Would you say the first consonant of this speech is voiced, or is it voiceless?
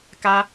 voiceless